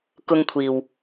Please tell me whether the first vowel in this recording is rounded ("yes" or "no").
yes